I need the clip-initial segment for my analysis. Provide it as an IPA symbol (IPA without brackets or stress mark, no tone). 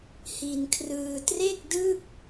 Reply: h